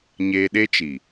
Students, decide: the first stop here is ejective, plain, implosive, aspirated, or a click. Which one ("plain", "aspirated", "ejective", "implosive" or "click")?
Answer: implosive